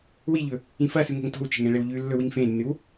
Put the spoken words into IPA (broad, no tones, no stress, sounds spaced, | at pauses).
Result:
w i ʎ ɵ | ĩ f ɐ s ʉ ŋ o̤ ŋ t o̤ w t͡ʃ e̤ ŋ ẽ ɭ e w ʎ ʉ lː ɵ w i ŋ f ẽ nː ɨ w